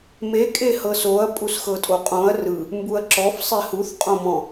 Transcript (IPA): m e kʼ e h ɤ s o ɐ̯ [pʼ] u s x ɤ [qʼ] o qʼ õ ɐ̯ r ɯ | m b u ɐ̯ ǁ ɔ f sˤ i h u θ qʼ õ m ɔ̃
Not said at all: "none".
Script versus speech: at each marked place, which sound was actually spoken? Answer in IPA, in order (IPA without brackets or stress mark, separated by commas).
pʼ, tʼ